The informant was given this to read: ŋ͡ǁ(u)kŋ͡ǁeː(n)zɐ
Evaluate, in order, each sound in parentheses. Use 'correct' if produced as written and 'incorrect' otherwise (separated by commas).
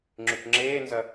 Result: incorrect, correct